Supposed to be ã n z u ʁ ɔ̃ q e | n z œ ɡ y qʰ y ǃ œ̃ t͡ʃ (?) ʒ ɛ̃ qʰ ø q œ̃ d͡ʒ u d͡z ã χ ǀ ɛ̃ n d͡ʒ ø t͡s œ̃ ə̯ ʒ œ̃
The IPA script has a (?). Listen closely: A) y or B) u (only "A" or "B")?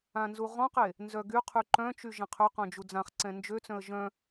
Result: A